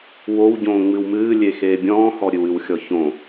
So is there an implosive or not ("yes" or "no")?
no